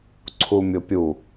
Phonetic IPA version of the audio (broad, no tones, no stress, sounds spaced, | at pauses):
ǀʰ u mʲ ʊ pʲ u